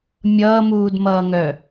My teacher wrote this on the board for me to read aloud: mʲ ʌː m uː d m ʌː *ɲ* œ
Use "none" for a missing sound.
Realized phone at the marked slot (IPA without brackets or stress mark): ŋ